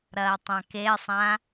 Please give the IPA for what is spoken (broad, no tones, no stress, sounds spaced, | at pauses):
ɾ ɐː tˤ ã k e sˤ ã